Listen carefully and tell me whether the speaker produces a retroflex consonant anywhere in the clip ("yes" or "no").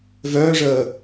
yes